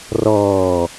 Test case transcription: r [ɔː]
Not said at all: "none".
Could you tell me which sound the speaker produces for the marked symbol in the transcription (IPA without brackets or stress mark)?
ɔː